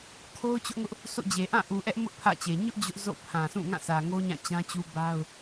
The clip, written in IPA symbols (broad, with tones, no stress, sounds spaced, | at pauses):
kʰ o˦ ʊ̯ t͡ɕ ʊ˦ ʔ ŋ ʊ˦ ʔ | sʰ o̰˦˨ d͡ʑ e˨ ʔ ã˦˨ ʔ u˨ ʔ ɛ˦ ʔ m ʊ˦ ʔ pʰ ä̰˦˨ t͡ɕ e˨ ɲ ʊ˦ ʔ d͡ʑ ʊ˦ ʔ z o̰˦˨ pʰ ã˨ sʰ ũ˦˨ ŋ ã˦˨ sʰ ä˨ ŋ o˦ ɲ ã˦˨ t͡ɕ ã˦ t͡ɕ u˦ b a˦ ʊ̯